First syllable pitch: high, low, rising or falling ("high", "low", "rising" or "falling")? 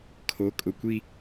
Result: rising